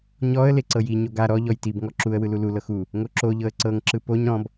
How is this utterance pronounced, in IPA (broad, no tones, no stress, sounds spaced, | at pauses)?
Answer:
ɲ ɔ ə̯ l e ǀ ɤ j i ɲ o ɡ a ɾ ɔ ʎ ɔ j t i b ŋ ɔ ǁ u ə̯ w ɯ l u l u l ɤ x u | ŋ o ǁ o ʎ ɤ ə̯ ǀ ɤ ŋ ǁ ɯ p o ɲ ɾ ɔ̃ b